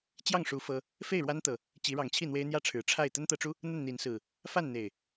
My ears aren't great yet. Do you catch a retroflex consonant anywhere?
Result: yes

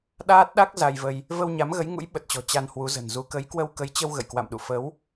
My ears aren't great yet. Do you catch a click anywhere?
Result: no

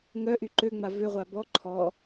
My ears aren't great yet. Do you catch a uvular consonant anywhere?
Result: yes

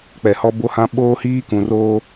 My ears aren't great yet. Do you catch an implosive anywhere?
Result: yes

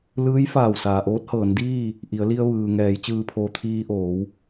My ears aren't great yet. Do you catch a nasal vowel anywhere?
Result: no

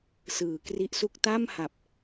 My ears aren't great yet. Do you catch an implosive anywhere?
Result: no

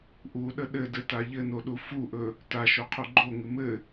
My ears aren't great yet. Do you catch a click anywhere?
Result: yes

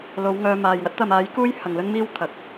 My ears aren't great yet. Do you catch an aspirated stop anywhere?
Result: yes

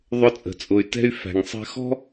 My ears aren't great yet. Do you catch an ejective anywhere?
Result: yes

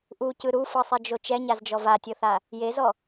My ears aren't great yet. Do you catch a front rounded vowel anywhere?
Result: no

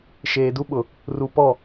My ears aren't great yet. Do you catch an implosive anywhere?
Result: yes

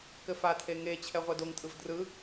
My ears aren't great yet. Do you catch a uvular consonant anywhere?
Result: yes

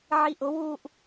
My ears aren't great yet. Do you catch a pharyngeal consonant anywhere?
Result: yes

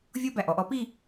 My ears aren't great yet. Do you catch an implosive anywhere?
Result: no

